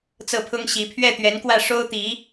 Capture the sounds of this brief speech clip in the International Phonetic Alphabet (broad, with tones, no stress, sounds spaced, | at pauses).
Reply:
t͡s ɤ˥˩ pʰ ʊ˥ ŋ ɕ i˧˥ pʰ ɥ ɛ˥˩ t̪ ɥ ɛ˧˥ n k w ä˥˩ ʂ o˥ ʊ̯ t̪ i˧˥